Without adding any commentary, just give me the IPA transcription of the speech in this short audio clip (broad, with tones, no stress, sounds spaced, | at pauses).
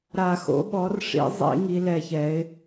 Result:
ɾ a˨˩˦ x o̰˩˥ ɓ ɔ˩˥ r ʂ ḭ˨˩˦ zˤ ḭ˨˩˦ ŋ i˩˥ l ɛ˨˩˦ ç ɛ˩˥ ɪ̯